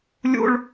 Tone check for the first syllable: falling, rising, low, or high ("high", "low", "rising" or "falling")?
high